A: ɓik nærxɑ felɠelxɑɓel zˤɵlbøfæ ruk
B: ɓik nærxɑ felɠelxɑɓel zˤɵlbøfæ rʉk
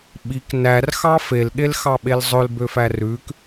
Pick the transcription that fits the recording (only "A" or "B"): B